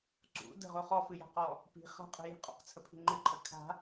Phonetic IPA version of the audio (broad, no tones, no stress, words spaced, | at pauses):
ǀṵ də̤ʁo χɔfɨja̤qɔ | pi̤ χa̤qʼə̤ji̤ qʼɔ̰qt͡sʰəpʰi̤ ŋ͡ǃɨǃʰə kʰa̤